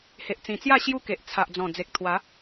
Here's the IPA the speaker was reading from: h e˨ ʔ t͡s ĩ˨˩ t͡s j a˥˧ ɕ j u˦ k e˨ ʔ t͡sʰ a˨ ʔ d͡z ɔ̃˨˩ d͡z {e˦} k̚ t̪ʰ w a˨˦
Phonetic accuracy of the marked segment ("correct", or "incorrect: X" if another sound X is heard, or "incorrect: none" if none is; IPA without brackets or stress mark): incorrect: e˨